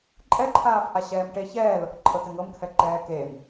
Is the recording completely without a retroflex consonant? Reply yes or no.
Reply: no